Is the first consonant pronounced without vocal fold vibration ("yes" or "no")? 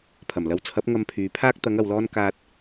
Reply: yes